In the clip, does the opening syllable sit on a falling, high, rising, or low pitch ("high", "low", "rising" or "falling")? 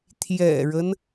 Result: low